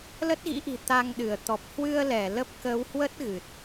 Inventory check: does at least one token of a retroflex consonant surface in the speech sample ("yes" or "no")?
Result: no